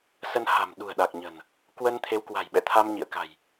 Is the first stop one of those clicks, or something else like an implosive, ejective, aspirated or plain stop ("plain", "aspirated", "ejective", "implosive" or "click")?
implosive